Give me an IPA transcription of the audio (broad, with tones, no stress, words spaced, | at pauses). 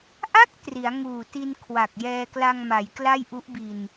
ʔa˦˥k̚ tri˩˦a̯ŋuː˨˩ti˧n kʰwa˨˩k̚jɛː˧kla˧ŋma˩˦j kla˥˩jʔu˦˥ʔbi˧n